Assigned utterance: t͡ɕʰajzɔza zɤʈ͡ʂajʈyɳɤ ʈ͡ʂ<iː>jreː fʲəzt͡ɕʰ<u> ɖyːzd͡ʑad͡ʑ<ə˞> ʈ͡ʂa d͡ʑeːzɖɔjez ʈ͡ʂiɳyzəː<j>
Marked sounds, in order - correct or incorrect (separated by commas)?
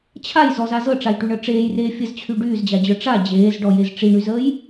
incorrect, incorrect, correct, correct